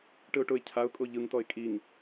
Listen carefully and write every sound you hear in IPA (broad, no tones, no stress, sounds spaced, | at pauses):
ʈ ɯ ʊ̯ ʈ ʊ ɪ̯ cʰ a ʊ̯ kʼ o ʎ ɯ ŋ t ɔ ɪ̯ kʼ i ŋ